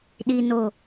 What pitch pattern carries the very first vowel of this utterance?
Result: low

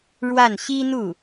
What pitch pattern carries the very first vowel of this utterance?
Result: falling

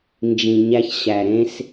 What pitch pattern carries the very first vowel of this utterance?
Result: low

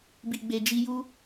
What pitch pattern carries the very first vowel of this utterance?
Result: low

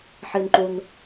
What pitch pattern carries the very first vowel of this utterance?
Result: low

